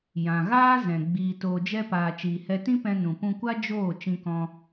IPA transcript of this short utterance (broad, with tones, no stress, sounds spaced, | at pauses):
j ã˨ ɣ aː˦ z ɛ̃˨ ɡ͡b iː˨ t oː˨ d͡ʒ ɛ˧ p aː˨ t͡ʃ iː˨ h ɛ˧ t ĩ˦ p ɛ̃˧ n ũ˨ p ũ˧ kʷ a˦ d͡ʒ oː˦˨ t͡ʃ ĩ˧ k ɔ̃˧